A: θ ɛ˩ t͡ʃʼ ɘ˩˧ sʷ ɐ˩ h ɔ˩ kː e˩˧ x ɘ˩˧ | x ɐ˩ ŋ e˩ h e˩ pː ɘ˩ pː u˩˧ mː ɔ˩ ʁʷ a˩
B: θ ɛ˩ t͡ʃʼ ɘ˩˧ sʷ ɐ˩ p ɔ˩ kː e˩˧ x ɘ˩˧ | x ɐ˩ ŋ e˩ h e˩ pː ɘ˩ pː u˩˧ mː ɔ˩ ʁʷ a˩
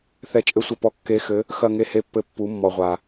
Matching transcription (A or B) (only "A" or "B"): B